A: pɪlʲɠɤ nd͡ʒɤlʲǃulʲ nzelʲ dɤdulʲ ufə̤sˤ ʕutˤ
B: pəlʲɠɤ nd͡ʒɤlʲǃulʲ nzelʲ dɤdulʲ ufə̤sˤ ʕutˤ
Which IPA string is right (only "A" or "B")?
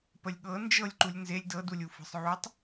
B